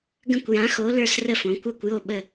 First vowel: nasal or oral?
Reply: nasal